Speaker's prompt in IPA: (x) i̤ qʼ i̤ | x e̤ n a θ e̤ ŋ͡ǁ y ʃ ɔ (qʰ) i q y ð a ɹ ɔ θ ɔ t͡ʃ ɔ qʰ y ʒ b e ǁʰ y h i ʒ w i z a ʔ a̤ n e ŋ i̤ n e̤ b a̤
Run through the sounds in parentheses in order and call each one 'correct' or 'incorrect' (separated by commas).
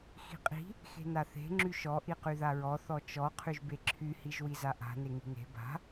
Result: correct, incorrect